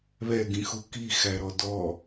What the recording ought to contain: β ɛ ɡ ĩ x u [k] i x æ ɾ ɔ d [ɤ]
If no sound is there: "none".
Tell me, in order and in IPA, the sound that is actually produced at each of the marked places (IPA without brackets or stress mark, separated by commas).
k, ɔ